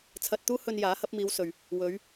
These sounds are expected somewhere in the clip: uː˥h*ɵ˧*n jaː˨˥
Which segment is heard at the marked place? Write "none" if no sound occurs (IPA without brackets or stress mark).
ɵ˧